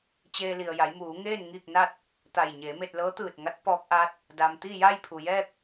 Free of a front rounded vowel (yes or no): yes